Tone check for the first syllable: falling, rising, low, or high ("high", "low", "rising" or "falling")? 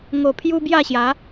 low